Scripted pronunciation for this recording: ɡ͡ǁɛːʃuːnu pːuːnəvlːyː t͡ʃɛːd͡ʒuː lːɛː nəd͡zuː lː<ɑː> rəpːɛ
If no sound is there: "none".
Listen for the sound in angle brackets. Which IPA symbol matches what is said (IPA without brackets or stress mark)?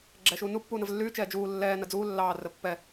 ɑː